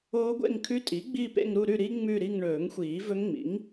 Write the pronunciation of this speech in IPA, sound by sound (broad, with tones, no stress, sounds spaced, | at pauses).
oː˦˥ ɡʷ ḛ˥˧ ŋ kʰ ʉ˦˥ tʼ i˩˥ ɡ͡b i˥˧ p ḛ˥˧ ŋ ɾ u˥˧ ɾ ʉ˥˧ ɾ i˦˥ ŋ͡m ʉ˥˧ ɾ i˥˧ ŋ ɳ ɵː˨˩˦ ŋ xʷ iː˨˩˦ v ɵ˦˥ ŋ ŋ͡m ḭ˩˥ ŋ